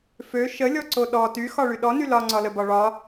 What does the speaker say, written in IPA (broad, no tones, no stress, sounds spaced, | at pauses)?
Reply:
f ø ʃ ə lʲ ɔ ǀ o ɗ ɔ t y x ɒ ɭ y ɗ ɔ n y l ɒ ŋ͡ǀ ɒ l ə b ɒ ɭ ɒ